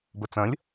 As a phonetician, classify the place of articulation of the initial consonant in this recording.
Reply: labial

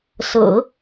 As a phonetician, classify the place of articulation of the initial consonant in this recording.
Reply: alveolar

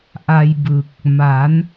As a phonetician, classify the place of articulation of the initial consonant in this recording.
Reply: glottal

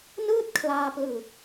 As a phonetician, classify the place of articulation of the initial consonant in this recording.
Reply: alveolar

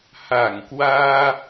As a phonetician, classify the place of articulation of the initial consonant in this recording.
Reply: glottal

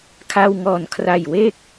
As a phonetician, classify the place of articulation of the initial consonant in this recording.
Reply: velar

